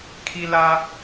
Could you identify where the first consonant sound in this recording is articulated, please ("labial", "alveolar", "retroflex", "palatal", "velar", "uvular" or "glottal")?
velar